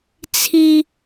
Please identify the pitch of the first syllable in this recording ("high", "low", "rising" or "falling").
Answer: high